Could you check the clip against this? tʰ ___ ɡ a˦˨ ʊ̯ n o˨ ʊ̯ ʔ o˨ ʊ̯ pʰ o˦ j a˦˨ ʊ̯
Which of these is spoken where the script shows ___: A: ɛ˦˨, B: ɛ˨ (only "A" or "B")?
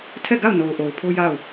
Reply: A